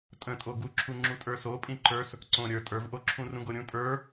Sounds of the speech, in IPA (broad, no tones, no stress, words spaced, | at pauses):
tʼə̃tʼo ɡuǁʰu ŋ͡ǁutʼə˞so pʼĩǃə˞s | ǀõ ɾʲə˞ tʼə˞vʔoǁʰũ rũɡoɾʲũ tʼə˞